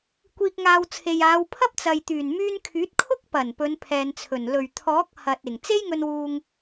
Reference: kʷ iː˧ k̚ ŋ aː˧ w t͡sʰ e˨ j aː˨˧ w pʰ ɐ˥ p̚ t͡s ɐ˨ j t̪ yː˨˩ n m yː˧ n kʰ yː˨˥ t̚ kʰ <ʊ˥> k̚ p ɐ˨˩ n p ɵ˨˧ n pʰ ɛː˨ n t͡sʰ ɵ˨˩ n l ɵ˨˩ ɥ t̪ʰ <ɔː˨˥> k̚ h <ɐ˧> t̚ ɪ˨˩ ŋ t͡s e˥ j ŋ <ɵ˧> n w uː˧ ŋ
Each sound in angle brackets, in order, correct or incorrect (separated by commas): correct, correct, incorrect, correct